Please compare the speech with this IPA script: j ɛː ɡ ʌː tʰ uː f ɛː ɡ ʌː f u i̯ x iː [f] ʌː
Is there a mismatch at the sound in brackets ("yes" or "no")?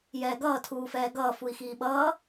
yes